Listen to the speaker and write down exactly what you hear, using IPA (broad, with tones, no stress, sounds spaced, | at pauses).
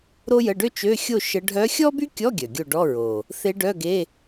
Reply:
ɾ o˥ j ə˧˥˧ ɖ ø˥ t͡ʃ ø˧˥˧ xʲ o˥˨ ʃ ə˧˥ ɖʱ œ˧˥ xʲ ɔ˥ b y˥ kʲ ɔ˧˥˧ ɡʲ œ˨˩ ɡʲ o˥˨ ɖ ɔ˧˥˧ ɹ o˨˩ | θ e˧˥ ɖ œ˧˥˧ ɡ e˧˥˧